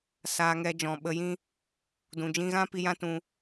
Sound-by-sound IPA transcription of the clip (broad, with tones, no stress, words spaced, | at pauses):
saː˨ŋɛ˨ d͡ʒɔ̃˨ɓə˧jĩ˦ | dũ˨d͡ʒĩ˧ɣã˦ pi˧jã˦tũ˧